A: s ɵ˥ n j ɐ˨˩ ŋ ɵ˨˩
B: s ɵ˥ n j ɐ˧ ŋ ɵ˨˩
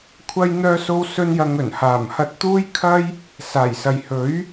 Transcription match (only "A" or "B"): B